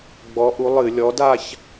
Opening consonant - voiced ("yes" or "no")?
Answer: yes